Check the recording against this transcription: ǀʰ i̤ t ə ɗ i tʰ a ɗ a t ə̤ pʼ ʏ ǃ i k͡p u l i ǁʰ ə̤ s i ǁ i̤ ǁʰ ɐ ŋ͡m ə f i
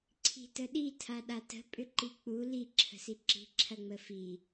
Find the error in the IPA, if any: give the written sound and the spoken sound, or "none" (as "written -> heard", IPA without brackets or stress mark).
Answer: none